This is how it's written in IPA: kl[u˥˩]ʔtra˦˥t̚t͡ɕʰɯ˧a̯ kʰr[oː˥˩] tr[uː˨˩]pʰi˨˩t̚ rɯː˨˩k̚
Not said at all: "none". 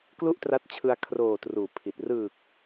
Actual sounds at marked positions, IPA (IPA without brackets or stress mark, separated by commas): u˥˩, oː˨˩, uː˨˩